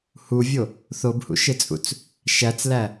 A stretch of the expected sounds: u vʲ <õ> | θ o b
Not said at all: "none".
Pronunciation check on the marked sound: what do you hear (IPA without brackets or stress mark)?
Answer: o